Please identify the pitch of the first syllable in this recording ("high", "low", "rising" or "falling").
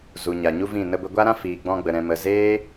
low